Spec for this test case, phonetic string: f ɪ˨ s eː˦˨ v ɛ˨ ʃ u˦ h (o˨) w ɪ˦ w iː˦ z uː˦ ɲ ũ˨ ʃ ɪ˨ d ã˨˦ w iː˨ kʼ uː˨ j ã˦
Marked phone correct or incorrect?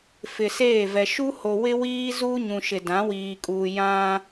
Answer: correct